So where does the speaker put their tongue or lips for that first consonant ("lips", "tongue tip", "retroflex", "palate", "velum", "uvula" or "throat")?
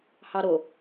throat